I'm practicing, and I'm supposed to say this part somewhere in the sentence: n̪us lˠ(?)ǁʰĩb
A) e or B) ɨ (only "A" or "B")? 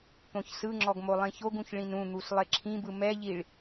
A